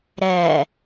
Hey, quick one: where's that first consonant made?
tongue tip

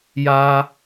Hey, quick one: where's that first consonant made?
palate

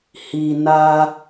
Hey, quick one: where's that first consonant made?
throat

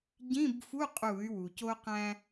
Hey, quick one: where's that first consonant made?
palate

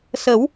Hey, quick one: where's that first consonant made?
tongue tip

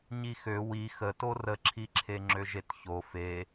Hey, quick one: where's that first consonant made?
palate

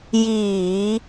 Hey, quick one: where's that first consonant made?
palate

